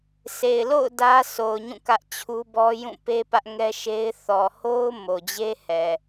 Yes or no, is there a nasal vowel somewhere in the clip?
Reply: yes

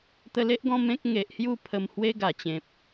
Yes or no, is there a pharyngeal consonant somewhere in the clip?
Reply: no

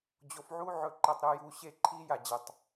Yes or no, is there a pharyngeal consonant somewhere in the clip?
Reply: yes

